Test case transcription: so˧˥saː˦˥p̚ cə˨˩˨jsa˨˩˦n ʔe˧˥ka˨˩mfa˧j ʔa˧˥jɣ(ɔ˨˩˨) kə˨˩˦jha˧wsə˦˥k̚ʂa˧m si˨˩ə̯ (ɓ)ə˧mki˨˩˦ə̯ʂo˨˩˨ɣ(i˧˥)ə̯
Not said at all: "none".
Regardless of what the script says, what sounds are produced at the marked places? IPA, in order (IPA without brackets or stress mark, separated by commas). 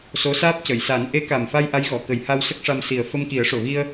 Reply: ɔ˨˩˨, f, i˧